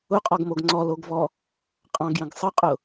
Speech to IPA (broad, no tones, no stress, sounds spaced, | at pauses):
ʊ qʼ ɔ ɡ m o ɡ ŋ͡ǀ ɔ l o ɡ v ɔ | qʼ ɑ̃ ɡ j ə̃ ɡ sˤ ə qʼ ʊ